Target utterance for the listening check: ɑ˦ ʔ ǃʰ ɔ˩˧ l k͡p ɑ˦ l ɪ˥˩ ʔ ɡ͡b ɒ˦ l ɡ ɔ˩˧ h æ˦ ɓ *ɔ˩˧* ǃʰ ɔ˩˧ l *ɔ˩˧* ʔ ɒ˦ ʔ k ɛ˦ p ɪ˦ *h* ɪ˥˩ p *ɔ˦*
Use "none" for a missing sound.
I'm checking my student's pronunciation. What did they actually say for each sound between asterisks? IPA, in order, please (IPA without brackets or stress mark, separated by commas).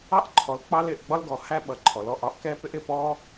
ʌ˩˧, ɔ˩˧, ʔ, ɔ˦